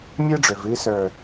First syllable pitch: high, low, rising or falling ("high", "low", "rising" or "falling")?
high